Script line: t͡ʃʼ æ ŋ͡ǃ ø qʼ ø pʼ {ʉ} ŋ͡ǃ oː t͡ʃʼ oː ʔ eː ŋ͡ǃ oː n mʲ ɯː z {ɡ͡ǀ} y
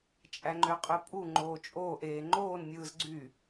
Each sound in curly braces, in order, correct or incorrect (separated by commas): incorrect, correct